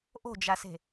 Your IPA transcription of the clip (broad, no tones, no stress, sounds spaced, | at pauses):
ʔ o̤ d͡ʒ a s e̤